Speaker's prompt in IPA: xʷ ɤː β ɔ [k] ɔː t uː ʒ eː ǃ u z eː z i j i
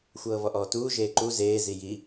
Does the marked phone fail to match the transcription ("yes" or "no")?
yes